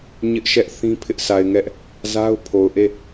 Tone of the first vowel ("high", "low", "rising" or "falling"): high